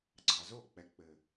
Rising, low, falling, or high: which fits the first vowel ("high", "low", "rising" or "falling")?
low